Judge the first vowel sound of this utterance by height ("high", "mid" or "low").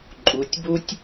high